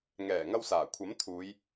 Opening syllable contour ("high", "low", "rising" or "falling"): low